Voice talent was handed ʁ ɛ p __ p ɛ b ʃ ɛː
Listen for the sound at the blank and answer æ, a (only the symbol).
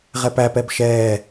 æ